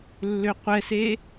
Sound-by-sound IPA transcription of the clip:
lːøqʷɛse

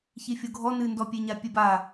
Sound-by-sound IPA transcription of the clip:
çifʲoɡʱɔ nɨndɔpʲeɲa pʲɨba

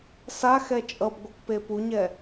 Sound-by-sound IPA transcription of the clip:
saxɛ t͡ʃʼʌbɡʷɯkpe puɲɛ

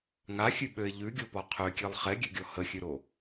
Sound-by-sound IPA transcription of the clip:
ŋaxʲʉɓøɪ̯ ʎʉɡʲopɔ qʰøkʲelˠ χɛɡʲøɡʲɔ həxʲʉɾo

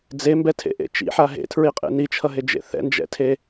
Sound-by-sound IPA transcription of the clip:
d͡zembɛtʰḛʔḛ t͡ʃḭħa ɦḛtʰɹiqʼḛ nit͡ʃʰʌɦed͡ʒḛ θɛ̰nd͡ʒɛ̰tʰe

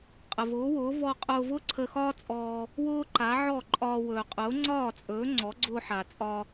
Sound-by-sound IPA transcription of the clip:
qʼə˩vʊː˩˥wʊː˩˥ vɔ˧qʼʊː˧vʊ˥ ǀʰə˧xɒː˥t͡sʼɔː˧ | wʊː˥ǃa˩˥ ʕɔ˥˩ǃʼɒː˧ wɵː˩qʼʊː˩˥ŋ͡ǀɒː˥˩t͡sʼɵː˩˥ ŋ͡ǀɔ˩˥ɡ͡ǀʊː˧ħa˩ t͡sʼɒ˧

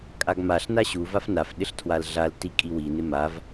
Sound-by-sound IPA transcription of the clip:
kʼaɡmaɬ naɕu vafnaf ɗɪɬtʰwalɮal tikʼiwi nɪmav

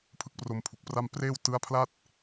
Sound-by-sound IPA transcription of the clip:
pʰɯ˥˩k̚pro˧mpʰu˨˩k̚pra˥˩m preː˥˩w tɯ˦˥a̯pʰla˥˩t̚

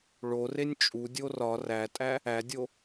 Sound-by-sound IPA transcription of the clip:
ɭorenʲ t͡ʃʼudʲo rɒ rætʼæ | ædʲo

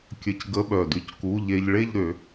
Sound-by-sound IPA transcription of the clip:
kʲə˧c ɡə˧˥˧ɓœ˨˩dy˥˩cku˧˥˧ ʎe˧ʎɭe˥˧ʎɾø˨˩˦

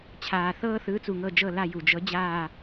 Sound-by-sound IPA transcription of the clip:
t͡ɕʰaː˩θɤː˥θɯː˨˥ t͡su˩ŋɤ˦˨d͡ʒɤ˦˨la˦˨ ju˩d͡ʒɤ˨˥ d͡ʑaː˦˨

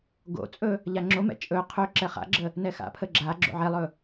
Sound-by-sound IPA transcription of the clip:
ɡo̰t͡sʼɵ | ʎaŋ͡ǁomɛ̰ t͡ʃʼɵ qʰɵ ǁɛχa̰ɡ͡ǁə | nɛxa̰pʰə ɡ͡ǁa ɡ͡ǁo̰ʕɛlˠɵ

